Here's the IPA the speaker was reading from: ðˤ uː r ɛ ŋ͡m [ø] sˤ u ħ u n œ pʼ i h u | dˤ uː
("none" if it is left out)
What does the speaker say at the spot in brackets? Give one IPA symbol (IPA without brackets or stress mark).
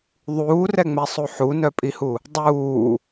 ɛ